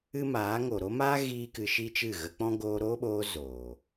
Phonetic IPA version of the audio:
ɨ˦ m aː˨˦ ŋ o˨ ɾ o˦ m aː˦ ɣ iː˦ k ɨ˧ ʃ i˦ t͡ʃ ɨ˦˨ ɣ ə˧ k͡p ɔ̃˦ ɡ oː˧ ɾ oː˦ ɓ oː˧ z oː˨

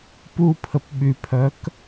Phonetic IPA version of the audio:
p u pʰ ə p ɓ y pʰ œ k

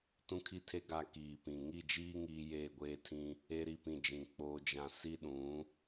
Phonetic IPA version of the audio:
t ũ˦ kʰ i˦ tʰ e˦ ɡ a˦ k iː˨ p ĩ˨ ŋ i˦˨ d͡ʒ iː˦ ŋ iː˦ j eː˦˨ ɡʷ eː˦ tʰ ĩ˦ | e˦ ɾ i˦˨ p ĩ˦˨ d͡ʒ ĩ˨ k͡p oː˦ d͡ʒ ã˦ s i˦ ɗ ũ˨˦

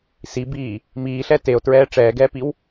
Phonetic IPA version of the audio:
s i b iː | m iː ɬ ɛ t e o̯ t ɹ ɛː ʈ͡ʂ ɛː ɡ ɛː p i w

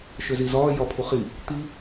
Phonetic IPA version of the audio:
ʃ ø z i z ɒː j ɒ pʰ u χ i | t̪ i

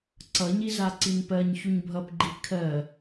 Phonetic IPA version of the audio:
ǀ ʌ ɲ i z a ǀ i n p ɜ ɲ ç u ɲ bʱ ʌ p ɡ͡ǃ i kʰ ɜ

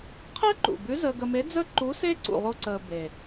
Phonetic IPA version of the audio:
qʰ əː˥ ǃ ṵ˨˩ b ʉ˧˥ z əː˧ ɡ ə˧ m e˧˥ d͡z ə˥ ǃ u˧˥ s e˥ ǀ ṵ˧ ʁ o˥ ǀ əː˧ b e˨˩

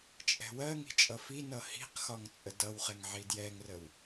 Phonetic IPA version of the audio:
t͡ʃʼ ɛ̤ w ɜ ŋ i̤ t͡ʃʼ ʌ f i n ʌ h i̤ q x ɒ ŋ t͡sʼ ə d ʌ w χ ɛ ŋ ʕ i d j ɛ ŋ r ə w

